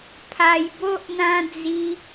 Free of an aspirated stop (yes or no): no